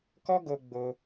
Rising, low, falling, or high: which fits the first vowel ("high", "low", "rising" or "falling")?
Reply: high